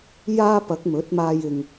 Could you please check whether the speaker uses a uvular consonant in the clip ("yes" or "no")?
no